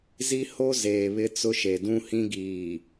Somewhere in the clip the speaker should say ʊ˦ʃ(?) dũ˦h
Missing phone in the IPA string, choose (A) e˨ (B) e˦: A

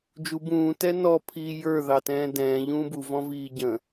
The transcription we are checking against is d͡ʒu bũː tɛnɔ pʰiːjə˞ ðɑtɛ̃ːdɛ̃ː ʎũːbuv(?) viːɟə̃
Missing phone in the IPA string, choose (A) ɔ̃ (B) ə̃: A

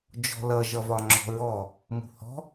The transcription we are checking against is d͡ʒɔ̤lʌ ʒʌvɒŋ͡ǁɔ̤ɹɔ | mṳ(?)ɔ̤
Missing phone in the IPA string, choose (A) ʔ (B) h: B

